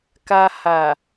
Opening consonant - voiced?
no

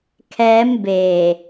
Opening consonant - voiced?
no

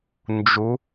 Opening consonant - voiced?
yes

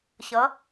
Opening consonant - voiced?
no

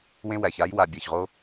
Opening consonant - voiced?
yes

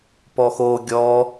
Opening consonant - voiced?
no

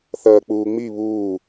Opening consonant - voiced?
no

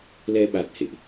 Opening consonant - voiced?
yes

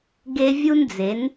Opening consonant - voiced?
yes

